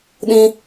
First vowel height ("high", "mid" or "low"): high